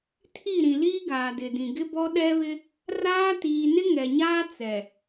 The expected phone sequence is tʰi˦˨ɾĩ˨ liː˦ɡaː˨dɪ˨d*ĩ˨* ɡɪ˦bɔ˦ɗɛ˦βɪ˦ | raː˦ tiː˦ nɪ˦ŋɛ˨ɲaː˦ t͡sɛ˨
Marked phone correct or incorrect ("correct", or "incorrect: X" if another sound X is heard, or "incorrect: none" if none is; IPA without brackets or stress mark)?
correct